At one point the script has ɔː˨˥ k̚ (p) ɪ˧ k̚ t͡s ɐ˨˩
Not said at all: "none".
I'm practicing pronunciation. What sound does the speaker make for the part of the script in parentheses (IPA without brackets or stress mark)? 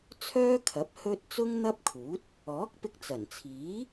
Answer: p